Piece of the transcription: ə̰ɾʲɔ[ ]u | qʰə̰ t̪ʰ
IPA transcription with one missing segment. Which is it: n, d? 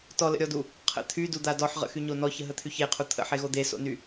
d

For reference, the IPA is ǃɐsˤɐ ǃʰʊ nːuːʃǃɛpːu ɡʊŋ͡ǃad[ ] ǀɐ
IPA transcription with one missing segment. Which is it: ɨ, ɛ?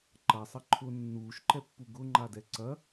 ɛ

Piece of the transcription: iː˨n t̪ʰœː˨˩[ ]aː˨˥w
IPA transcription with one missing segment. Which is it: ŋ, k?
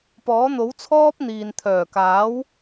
k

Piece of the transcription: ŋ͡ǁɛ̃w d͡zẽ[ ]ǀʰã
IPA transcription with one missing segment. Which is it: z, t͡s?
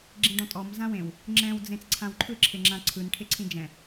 t͡s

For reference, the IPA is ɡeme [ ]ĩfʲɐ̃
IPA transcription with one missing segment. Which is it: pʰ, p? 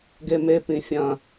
p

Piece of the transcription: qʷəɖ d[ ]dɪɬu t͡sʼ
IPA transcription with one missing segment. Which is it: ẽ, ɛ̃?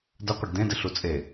ẽ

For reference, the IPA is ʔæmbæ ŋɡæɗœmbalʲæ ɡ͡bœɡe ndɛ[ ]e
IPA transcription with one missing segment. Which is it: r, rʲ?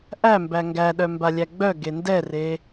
r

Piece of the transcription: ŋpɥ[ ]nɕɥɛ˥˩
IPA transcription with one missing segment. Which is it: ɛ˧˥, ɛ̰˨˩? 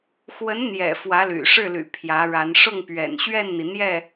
ɛ̰˨˩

